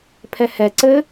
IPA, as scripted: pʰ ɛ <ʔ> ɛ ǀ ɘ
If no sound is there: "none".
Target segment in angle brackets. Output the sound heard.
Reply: h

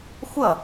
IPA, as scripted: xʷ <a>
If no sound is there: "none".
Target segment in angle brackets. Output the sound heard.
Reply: ʌ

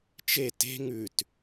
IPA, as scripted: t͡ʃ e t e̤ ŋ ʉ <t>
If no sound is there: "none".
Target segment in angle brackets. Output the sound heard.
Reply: t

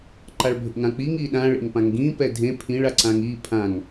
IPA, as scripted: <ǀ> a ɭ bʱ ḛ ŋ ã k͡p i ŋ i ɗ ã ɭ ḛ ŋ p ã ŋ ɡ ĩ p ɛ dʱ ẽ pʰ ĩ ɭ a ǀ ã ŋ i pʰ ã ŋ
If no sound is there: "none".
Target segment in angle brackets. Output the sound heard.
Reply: ǃ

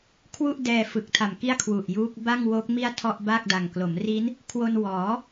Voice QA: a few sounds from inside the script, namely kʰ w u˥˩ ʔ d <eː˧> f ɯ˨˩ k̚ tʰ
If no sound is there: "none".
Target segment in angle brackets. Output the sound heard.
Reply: ɛː˧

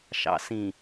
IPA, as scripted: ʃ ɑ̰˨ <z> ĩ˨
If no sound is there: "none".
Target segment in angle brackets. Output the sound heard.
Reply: s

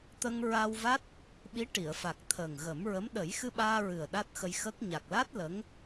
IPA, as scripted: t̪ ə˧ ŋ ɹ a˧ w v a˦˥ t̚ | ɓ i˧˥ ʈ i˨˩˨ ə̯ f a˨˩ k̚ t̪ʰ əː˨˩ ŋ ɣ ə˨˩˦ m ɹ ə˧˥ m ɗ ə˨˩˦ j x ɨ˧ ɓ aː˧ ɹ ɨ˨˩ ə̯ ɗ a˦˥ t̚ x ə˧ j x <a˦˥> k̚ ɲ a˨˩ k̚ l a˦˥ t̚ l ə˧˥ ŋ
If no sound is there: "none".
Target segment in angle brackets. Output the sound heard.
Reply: ə˦˥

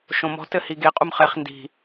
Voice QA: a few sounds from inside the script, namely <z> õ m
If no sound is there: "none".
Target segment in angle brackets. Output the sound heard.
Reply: ʃ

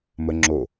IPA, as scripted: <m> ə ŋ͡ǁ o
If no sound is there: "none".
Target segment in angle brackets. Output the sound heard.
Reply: m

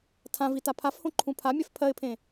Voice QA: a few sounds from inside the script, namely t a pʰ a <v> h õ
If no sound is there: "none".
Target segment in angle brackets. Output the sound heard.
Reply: f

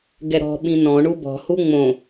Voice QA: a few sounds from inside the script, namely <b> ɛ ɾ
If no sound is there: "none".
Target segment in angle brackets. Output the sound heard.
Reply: ɡ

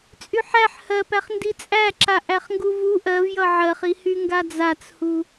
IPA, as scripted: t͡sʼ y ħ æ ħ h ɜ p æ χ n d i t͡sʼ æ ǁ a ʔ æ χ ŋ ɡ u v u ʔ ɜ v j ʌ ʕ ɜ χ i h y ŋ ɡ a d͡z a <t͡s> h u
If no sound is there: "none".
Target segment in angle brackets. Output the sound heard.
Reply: t͡s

